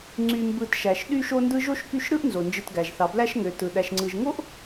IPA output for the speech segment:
ŋ͡ǀ y˨ m b ɯ˨ t ʃ æ˩ ʃ ɗ y˦ ʃ o˦ n d ɯ˦ ʒ o˥ ʃ k y˦ ʃ ɾ ɯ˥ ʔ n z o˩ n d͡ʒ ɯ˨ t ɡ æ˩ ʒ θ ɑ˩ b l æ˦ ʃ ŋ ø˩ t ɯ˩ ɗ æ˨ ʃ ŋ͡ǀ ɯ˨ ʒ ŋ o˥ ʔ

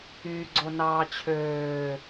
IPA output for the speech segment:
yː ɡ͡ǀ o n ɑː t͡ɕʰ øː

